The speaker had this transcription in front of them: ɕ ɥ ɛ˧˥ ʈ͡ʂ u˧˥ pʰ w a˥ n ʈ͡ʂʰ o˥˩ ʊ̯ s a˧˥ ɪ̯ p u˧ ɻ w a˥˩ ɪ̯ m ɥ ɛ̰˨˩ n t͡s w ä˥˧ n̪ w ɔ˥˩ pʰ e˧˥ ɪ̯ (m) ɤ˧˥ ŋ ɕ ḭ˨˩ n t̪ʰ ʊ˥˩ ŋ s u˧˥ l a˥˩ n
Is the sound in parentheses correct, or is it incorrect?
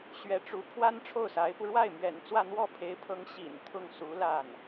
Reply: incorrect: pʰ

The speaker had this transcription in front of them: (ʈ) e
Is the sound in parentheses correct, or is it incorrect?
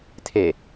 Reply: incorrect: tʰ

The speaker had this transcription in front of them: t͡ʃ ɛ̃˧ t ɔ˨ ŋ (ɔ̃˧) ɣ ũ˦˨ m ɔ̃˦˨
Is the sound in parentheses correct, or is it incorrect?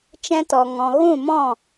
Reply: incorrect: ɔ̃˨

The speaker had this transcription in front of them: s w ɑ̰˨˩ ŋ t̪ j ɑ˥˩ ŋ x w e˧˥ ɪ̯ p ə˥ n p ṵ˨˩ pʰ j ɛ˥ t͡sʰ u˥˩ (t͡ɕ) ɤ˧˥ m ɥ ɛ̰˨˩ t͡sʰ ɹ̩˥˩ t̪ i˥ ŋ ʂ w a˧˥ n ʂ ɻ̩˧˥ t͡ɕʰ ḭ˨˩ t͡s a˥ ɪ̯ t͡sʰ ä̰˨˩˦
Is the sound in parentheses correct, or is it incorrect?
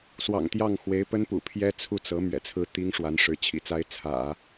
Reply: incorrect: t͡s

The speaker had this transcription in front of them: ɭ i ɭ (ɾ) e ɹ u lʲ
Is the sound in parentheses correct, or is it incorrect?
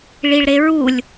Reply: correct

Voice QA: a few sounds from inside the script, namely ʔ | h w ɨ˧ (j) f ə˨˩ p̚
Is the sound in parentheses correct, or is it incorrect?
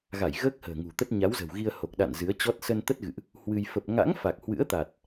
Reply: correct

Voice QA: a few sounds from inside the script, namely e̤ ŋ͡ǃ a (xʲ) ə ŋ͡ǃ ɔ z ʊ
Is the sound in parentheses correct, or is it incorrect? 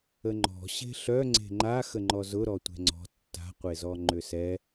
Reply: incorrect: x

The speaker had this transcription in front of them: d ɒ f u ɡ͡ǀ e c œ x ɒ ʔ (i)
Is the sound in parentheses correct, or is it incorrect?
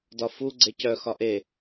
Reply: incorrect: e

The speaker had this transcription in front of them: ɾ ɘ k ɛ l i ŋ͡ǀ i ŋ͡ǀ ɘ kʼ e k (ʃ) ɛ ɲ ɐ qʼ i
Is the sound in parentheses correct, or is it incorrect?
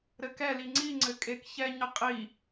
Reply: incorrect: ç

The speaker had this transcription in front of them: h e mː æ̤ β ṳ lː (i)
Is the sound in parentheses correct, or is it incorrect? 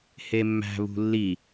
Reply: correct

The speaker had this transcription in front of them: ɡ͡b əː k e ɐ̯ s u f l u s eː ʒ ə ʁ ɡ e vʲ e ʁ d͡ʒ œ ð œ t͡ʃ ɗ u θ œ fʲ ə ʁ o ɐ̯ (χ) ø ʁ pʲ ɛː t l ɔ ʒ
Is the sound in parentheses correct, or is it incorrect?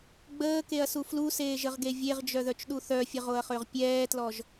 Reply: correct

